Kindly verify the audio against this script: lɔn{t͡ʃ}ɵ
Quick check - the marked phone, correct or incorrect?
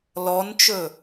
correct